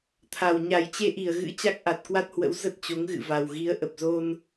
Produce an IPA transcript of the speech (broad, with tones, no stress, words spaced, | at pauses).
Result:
t̪ʰa˨˩w ɲa˨˩jt͡ɕe˧ʔi˧˩ə̯ɣɨ̰˧˥ t͡ɕa˦˥k̚ʔa˨˩t̚kwa˦˥t̚hwə̰˧˥w zə˦˥t̚t͡ɕo˨˦ŋɣɨ̰˧˨ va˨˩w ɣi˨˦ə̯ʔə˨˩p̚zo˧n